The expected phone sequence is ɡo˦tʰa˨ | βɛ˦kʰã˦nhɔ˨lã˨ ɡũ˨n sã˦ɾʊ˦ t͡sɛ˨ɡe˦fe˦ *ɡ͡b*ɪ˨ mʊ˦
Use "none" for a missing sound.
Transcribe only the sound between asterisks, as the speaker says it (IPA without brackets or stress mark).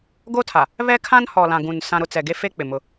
k͡p